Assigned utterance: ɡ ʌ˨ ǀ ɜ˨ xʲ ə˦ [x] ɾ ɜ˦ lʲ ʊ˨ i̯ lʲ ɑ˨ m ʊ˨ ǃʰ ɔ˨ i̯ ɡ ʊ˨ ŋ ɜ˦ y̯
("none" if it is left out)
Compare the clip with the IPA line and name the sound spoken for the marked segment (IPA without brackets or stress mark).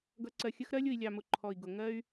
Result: x